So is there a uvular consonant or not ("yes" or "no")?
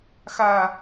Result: no